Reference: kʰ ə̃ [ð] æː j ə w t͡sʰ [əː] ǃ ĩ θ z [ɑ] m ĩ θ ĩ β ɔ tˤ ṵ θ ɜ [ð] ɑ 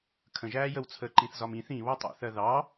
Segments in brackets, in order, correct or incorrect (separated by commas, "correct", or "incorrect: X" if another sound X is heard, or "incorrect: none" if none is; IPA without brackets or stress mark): incorrect: ʒ, correct, incorrect: ɒ, correct